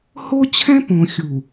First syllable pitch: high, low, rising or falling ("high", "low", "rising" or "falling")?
high